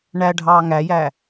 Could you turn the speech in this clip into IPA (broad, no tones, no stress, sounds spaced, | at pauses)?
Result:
ɳ æ ɖʱ ɑː ŋ æ j æ